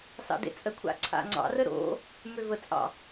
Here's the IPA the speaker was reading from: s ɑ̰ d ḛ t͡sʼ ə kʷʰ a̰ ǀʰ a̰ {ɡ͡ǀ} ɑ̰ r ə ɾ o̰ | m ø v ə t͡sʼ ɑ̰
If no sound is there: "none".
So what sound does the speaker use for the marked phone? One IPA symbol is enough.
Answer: ŋ͡ǀ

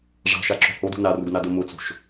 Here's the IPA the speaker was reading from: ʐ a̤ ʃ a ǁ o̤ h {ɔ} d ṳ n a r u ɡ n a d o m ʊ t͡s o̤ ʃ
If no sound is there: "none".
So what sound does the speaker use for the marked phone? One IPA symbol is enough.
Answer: o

